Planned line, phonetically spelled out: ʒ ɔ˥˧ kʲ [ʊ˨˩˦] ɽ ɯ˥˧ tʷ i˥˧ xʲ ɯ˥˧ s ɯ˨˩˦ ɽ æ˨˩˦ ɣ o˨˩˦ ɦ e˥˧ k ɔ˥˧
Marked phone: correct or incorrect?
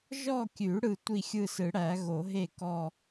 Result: incorrect